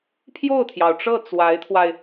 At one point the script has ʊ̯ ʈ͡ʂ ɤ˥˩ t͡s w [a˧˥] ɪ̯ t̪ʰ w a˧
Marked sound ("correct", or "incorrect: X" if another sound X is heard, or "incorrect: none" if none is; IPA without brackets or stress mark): correct